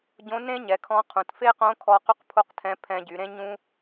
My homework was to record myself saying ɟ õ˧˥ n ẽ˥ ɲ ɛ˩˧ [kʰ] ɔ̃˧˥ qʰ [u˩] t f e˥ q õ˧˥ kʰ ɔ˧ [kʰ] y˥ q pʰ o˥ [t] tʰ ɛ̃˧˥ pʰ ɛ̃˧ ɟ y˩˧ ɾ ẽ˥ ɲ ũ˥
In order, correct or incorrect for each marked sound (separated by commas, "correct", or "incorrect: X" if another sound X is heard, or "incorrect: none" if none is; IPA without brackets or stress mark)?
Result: correct, incorrect: ũ˩, incorrect: q, incorrect: q